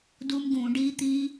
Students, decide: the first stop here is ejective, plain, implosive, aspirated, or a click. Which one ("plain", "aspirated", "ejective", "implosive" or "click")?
plain